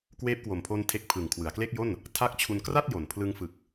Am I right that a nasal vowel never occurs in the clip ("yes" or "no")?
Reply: yes